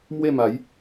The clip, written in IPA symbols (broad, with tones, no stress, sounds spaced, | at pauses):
m w e˥˧ m a˨˦ j